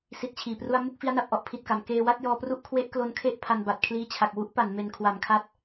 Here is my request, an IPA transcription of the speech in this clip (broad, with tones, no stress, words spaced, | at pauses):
si˦˥t̚t͡ɕʰiː˨˩pru˥˩a̯ mu˥˩k̚fi˦˥a̯na˨˩p̚ʔɔ˥˩ʔ pʰi˨˩t̚ka˩˦m keː˧wa˥˩t̚jɔː˧pru˥˩ʔ kʰwe˦˥ʔ klo˦˥nkʰe˥˩ʔ pʰa˧nba˨˩t̚ kʰliː˦˥t͡ɕʰa˨˩k̚ wu˦˥ʔpa˩˦n me˨˩n kʰwa˩˦mkʰa˦˥t̚